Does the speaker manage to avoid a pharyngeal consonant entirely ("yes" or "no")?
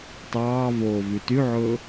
no